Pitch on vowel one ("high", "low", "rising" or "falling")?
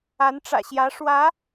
rising